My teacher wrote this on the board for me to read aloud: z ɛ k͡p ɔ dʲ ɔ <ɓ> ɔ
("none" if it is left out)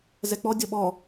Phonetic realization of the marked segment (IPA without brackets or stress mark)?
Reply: ɓ